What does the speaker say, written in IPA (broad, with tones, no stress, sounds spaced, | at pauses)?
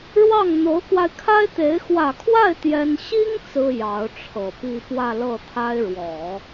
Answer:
ɻ w ɑ˥˩ ŋ n̪ o˧˥ ʊ̯ k w a˧ ɪ̯ kʰ a˥ ɪ̯ t̪ e˧˥ ɪ̯ x w ä˨˩ kʰ w a˥˩ ɪ̯ t̪ j ɛ˥ n ɕ i˥ ŋ t͡s ɹ̩˥ j ɑ˧˥ ʊ̯ ʈ͡ʂʰ ɤ˨˩ p i˥˧ p w ä˥˧ l ɤ˥˩ t̪ʰ a˥ ɪ̯ ɻ w ɔ˨˩˦